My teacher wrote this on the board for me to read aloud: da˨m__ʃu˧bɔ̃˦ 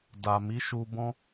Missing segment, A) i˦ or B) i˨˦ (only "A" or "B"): B